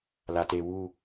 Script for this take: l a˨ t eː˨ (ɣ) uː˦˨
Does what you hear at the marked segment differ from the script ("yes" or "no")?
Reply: yes